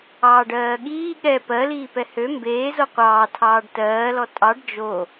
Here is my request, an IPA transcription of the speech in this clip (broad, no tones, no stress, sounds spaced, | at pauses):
ɑː ɖ ɜː ɠ iː ɠ ɛ p ɜ l iː p ɛ h ø m b eː z o qʷ ɑː tʰ ɑː ɖ t ɜː l ɔ tʼ ɑ ɖ d͡ʒ o